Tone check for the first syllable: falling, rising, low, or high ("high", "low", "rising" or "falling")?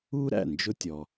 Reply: high